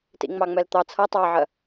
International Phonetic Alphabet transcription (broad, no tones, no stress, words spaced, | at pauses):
tḭŋ͡mɑŋ͡mɛlt̪ɑ t͡sʰʌ tˤɑʕɜ